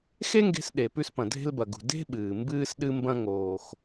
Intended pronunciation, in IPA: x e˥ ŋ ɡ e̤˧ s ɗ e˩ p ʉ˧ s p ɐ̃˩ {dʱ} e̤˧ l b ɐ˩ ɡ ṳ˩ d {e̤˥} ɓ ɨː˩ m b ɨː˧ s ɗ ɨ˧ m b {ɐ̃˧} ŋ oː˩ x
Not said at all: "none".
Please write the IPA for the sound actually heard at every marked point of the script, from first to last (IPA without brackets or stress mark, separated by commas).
dʱ, e̤˥, ɐ̃˧